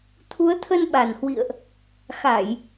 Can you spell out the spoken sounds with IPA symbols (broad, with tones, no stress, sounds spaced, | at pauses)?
t̪ʰ u˨˦ ə̯ t̪ʰ ə˧ n ɓ a˨˩ n h w ḭ˧˨ ə̯ ʔ | x a˧˩˨ j